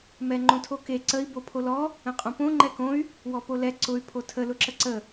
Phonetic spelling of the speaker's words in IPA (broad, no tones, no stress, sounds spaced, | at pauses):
m ɛ ŋ͡ǃ õ tʰ o k e ǀ ə i̯ b o pʰ o l ɔ | ə̃ qʼ õ p õ ŋ͡ǃ ɛ k õ y̯ | w ɔ p o l ɛ ǀ ʊ y̯ pʰ o tʰ ə l ʊ ǁ ə ǀ ə